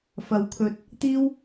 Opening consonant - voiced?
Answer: no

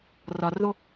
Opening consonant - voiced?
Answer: yes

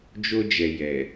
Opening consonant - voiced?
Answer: yes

